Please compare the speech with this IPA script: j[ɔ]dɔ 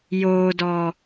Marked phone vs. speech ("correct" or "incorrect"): incorrect